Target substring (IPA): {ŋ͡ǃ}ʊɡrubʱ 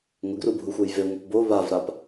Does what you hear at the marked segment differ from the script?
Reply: yes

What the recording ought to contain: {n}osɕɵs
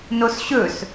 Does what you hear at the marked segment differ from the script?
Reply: no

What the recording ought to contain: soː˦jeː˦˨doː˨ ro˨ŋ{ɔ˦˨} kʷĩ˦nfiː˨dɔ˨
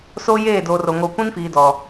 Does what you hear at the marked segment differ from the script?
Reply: yes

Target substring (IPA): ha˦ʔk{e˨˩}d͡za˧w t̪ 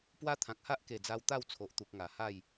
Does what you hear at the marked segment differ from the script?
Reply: no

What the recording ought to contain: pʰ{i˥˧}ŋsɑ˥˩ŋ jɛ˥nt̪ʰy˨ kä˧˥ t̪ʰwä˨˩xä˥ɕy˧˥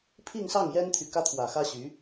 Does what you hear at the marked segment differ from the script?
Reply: no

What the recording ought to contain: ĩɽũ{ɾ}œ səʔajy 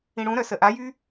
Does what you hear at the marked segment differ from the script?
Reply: no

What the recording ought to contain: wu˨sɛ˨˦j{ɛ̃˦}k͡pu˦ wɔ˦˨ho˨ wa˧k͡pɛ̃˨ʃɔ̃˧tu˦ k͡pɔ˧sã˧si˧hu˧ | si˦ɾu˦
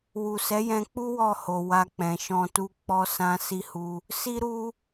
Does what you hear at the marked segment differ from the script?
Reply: yes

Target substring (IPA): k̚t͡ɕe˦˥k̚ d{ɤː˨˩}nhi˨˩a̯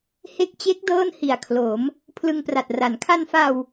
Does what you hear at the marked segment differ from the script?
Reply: yes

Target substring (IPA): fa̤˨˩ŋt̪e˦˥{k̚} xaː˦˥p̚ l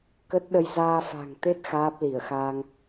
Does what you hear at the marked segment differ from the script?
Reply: yes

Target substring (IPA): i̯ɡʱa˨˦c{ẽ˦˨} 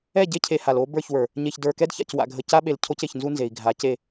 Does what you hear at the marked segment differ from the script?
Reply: yes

